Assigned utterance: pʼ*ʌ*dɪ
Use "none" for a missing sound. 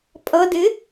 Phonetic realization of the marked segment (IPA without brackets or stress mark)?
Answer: ʌ